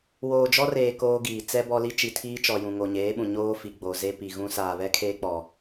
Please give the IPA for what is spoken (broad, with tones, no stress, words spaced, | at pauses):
woː˨d͡ʒɔ˦reː˨ koː˦ɡiː˨ t͡sɛ˦bɔ˦li˦ t͡ʃi˨tʰiː˦t͡ʃɔ˨ jũ˨ŋo˨ɲeː˨˦ɓũ˨ ɲoː˦ fi˨ɡ͡bo˨ze˦ pi˨ ɣũ˦ saː˨βɛ˦kʰeː˦k͡pɔ˨